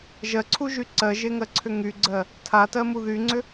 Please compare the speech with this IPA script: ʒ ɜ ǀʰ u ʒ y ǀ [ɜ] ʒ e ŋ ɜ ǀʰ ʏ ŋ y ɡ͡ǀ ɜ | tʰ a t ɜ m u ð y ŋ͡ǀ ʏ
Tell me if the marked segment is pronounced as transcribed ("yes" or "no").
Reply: yes